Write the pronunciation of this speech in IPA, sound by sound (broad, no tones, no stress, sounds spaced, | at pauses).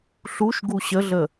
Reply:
ɬ u ʃ ɡ u ɕ ə ɮ ə